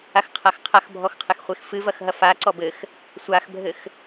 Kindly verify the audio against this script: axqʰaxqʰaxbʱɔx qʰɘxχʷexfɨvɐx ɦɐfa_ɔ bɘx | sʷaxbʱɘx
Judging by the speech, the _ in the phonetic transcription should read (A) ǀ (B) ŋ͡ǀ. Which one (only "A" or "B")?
A